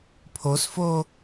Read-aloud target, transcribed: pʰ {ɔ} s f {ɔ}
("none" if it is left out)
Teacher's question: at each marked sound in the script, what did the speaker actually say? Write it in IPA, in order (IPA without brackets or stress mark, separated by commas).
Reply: o, o